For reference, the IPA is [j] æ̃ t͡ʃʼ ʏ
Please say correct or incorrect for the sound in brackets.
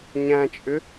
incorrect